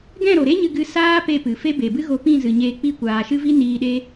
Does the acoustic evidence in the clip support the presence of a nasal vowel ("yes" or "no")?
yes